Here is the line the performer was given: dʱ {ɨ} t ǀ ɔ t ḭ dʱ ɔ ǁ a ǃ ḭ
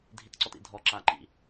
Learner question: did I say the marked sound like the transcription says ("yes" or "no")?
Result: no